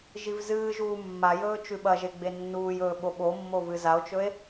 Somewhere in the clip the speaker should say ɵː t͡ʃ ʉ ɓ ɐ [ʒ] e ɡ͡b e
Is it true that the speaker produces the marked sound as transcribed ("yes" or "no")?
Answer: yes